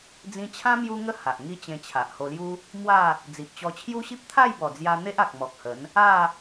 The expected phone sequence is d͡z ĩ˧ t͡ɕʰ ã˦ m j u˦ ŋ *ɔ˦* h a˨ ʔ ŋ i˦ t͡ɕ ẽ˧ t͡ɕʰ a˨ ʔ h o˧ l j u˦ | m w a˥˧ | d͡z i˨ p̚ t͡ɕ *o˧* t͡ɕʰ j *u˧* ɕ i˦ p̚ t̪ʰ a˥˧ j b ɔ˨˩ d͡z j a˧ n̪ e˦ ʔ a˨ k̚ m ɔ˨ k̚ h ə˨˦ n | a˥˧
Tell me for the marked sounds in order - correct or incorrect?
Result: incorrect: ə˦, incorrect: ɔ˧, incorrect: u˦

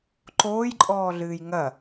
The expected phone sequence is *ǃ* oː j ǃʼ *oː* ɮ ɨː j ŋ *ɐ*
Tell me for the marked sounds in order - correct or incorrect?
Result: correct, incorrect: ɔː, correct

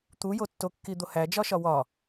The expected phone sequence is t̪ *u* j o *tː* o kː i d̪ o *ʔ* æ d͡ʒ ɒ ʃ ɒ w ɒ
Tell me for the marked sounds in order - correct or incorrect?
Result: correct, correct, incorrect: h

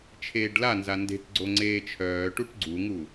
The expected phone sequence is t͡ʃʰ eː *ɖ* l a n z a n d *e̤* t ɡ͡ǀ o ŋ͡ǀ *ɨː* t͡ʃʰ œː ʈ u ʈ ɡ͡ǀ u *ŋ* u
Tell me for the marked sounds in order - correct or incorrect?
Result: correct, correct, incorrect: eː, correct

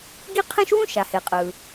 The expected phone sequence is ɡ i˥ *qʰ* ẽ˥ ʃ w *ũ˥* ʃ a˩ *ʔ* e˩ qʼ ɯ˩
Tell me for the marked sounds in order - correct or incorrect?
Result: correct, correct, incorrect: h

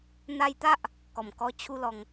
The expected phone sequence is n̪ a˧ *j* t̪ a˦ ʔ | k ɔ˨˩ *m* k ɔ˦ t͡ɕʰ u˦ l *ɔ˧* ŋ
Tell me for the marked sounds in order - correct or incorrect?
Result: correct, correct, correct

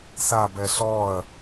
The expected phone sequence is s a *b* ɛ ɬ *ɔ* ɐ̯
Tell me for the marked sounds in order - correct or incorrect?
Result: correct, correct

